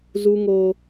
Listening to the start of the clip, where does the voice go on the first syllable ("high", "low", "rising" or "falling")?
high